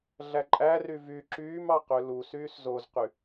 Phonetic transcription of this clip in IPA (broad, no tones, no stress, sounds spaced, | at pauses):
ɮ æ ǃʼ æ r y v y ǁ yː m ɑ q ø l u s yː s z o z q y